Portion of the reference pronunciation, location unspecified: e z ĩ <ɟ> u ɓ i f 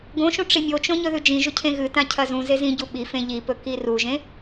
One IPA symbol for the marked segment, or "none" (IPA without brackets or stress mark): ɟ